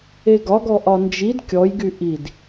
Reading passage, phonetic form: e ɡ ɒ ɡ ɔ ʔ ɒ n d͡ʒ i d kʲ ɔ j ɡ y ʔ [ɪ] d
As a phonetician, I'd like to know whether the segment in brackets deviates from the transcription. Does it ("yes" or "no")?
yes